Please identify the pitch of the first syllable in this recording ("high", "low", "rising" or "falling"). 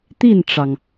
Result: falling